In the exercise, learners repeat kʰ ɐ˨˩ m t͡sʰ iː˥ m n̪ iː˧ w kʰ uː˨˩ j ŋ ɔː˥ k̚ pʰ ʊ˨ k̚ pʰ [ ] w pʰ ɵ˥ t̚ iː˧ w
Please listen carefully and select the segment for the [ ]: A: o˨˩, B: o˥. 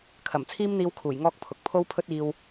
B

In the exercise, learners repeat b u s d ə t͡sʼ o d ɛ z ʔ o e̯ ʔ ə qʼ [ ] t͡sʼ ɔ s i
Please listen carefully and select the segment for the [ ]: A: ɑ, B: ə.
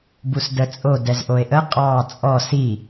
A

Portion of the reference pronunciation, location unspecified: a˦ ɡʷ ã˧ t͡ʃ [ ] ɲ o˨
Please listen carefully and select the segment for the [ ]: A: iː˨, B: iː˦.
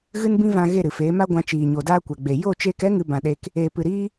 A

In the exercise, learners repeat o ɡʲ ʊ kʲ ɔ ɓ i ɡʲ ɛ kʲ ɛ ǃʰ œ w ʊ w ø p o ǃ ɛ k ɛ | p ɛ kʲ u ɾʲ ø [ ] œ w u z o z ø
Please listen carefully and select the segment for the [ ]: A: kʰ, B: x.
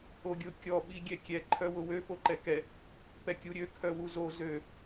A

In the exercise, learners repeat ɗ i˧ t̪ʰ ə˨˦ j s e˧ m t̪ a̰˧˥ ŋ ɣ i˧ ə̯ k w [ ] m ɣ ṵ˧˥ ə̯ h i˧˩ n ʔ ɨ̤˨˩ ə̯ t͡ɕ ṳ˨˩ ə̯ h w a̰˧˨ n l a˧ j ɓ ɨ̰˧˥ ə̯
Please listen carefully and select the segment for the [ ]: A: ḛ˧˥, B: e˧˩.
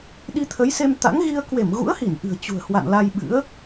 B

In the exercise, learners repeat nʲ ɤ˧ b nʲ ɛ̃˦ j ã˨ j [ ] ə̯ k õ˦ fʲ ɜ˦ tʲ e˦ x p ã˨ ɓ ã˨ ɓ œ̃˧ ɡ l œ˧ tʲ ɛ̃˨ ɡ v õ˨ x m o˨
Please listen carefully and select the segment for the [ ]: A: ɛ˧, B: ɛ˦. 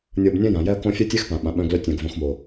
B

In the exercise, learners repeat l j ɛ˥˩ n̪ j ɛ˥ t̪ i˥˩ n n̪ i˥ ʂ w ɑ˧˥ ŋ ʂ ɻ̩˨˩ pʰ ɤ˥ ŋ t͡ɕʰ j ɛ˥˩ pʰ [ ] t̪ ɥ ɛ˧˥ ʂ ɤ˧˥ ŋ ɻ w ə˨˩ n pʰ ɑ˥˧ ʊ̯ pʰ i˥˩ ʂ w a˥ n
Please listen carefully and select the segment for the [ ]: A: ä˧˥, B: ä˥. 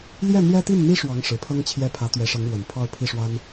A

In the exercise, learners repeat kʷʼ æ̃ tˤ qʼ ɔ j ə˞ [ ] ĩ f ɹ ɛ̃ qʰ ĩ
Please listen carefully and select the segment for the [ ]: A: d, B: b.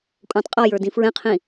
A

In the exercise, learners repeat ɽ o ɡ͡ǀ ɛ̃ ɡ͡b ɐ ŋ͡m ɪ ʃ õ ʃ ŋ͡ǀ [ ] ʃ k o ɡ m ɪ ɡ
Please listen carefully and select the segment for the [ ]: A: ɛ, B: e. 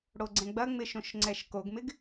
A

